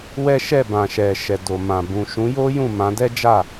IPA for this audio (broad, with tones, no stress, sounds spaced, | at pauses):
w ɛ˦ ʃ ɛ˦˨ b ã˨ ʃ ɛ˨ ʃ ɛ˨ d o˨ m ã˨ b ũ˨ ʃ ũ˨˦ j o˦ j ũ˦˨ m ã˨˦ d ɛ˦ d͡ʒ a˦˨